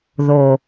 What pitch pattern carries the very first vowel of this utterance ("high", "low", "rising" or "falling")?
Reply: low